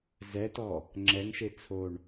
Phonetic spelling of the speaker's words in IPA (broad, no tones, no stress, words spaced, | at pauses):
zɛtɔ | ŋ͡ǁɛŋʃe t͡sʰoɳ